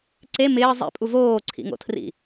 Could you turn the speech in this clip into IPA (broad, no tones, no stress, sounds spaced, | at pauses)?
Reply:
ǀ e m ɪː zˤ ḭ pʼ u v oː ǀʰ ḭ ŋ o̰ tʰ r ḭ